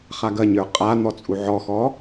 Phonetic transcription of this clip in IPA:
χ a ɡ ɐ ɲ ə˞ qʼ a n̪ ɔ t͡sʼ u ʕ ɔ x ɔ

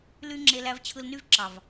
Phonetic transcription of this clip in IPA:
l y˧ ŋ͡ǁ e˧ l æ˧ v t͡ɕʰ ɯ˧ l n y˦ v ǁ ɑ˨ v

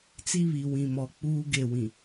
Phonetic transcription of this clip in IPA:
t͡s i˦ β i˨ w ĩ˨ m ɔ˨ k͡p uː˦ ɡ e˦˨ w ĩ˨

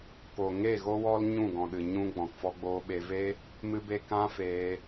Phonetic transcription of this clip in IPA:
k o˨ ŋ e˦˨ ɣ o˦ w ɔ˦ l ɲ ũ˦˨ ɡ ɔ̃˨ ɗ ɨ˨ ɲ ũ˧ ɡ͡b ɔ̃˨ k f ɔ˧ ɡ͡b oː˧ ɓ e˧ v e˦ | m ɨ˦ b e˦ k ã˦ f eː˧

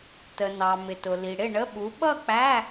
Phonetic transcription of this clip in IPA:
t ə˨ n ɑ˨ m ɪ˨ t ʊ˨ l i˨ ɽ ɪ˥˨ ɳ ə˧˥˧ ɓ u˨˥ ɓ ʌ˥˨ k͡p æ˧˥˧

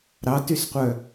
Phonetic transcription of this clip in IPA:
ɾ ɑ t y s qʷ œ

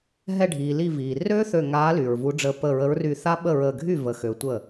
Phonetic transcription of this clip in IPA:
ɦ ɛ˧˩ ɖʱ iː˩ l i˧˩ v iː˩ r ø˦˥ θ ø˧˩ ŋ aː˨˦ l y˩ ɹ v u˨˦ ɖ͡ʐ əː˧˩ p əː˧˩ ɹ ə˨˦ ɹ r y˧˩ θ a˦˥ ɓ ə˥˩ ɹ əː˧˩ ɡʱ y˥˩ v ə˧˩ x ø˨˦ tʷ ə˥˩

